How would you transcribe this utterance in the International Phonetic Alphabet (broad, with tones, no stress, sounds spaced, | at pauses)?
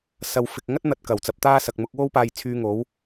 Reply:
s ɐ˨ w f ɪ˨ k̚ ŋ ɐ˥ t̚ n̪ ɐ˨ t̚ k ɐ˨˩ w t͡s ɐ˨˥ p̚ t̪ aː˥ s ɐ˨ k̚ m ʊ˧ k̚ w o˥ w p aː˧ j t͡sʰ yː˧ ŋ o˨˥ w